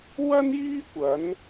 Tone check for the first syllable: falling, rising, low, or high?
high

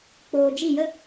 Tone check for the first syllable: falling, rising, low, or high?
low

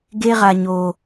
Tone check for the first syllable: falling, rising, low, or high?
high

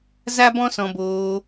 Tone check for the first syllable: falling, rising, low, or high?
high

